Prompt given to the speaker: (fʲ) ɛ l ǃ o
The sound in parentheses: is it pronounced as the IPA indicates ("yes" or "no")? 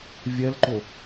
no